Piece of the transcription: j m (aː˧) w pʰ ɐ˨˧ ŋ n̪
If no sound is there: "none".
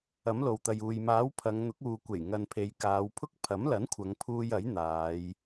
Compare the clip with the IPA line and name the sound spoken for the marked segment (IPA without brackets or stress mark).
aː˨˥